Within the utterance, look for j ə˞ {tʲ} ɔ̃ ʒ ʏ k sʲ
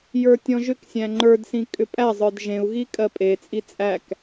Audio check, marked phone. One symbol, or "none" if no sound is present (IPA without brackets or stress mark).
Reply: tʲ